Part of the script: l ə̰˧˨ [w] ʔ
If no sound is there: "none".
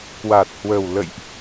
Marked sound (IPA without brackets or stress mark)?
j